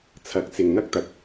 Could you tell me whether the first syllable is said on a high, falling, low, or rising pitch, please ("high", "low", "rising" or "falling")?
rising